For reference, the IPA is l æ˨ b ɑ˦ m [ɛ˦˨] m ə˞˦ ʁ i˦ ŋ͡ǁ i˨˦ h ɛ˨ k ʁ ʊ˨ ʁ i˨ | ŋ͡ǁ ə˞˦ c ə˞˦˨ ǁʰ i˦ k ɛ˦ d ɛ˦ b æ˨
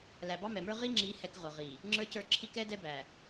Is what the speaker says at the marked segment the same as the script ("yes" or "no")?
no